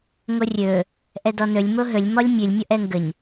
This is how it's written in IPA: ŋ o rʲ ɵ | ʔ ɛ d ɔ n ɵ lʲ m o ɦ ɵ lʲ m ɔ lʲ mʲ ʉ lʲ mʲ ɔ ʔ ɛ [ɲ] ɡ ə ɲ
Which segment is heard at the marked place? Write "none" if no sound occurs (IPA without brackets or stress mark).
ŋ